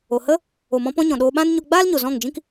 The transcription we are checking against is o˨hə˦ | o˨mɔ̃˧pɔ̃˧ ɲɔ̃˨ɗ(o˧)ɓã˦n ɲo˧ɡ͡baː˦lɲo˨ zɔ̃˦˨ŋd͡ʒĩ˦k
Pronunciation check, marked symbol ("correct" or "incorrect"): incorrect